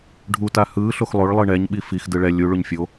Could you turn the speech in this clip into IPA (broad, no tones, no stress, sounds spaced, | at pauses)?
ɖʱ u t a h ɯ ɬ o x lˠ o ɭ lˠ ɯ ɳ ɛ ɲ ɓ i f i x d ɯ ɭ ɛ lʲ u ɭ u ɲ fʲ o